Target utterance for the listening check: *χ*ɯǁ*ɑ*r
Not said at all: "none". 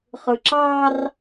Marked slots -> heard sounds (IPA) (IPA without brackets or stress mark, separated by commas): χ, ɑ